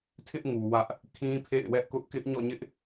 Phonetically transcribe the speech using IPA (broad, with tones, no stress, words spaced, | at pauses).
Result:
tʰɪ˦ʔŋu˨ wä˦ʔ | kʰĩ˦pʰḛ˦˨ɪ̯wɛ˦ʔkʊ˦ʔ kɪ˦ʔ ɲɔ̰˦˨ɲɪ˦ʔ